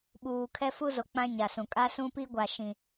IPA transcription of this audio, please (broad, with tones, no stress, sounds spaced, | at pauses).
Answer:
ɓ uː˨ kʰ ɛ˦ f u˦ z o˨ k͡p ã˦ ɲ a˨ s ũ˨ kʼ a˦ s ũ˦ p i˦ ɡʷ a˨ ʃ ĩ˨